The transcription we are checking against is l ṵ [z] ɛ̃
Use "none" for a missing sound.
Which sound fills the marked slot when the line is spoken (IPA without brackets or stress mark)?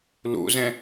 z